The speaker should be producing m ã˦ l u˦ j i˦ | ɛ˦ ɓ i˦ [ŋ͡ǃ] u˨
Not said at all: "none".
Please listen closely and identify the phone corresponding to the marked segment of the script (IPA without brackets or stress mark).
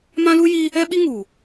ŋ